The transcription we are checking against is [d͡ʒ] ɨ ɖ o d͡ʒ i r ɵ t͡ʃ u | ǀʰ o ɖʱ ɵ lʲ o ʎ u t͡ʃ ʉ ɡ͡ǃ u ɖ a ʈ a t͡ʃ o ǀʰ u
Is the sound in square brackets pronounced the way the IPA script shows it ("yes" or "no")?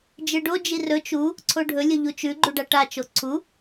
yes